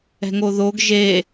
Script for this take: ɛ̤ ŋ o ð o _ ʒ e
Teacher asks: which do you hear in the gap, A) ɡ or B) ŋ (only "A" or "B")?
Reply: A